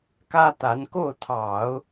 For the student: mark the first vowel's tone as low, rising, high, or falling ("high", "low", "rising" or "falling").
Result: high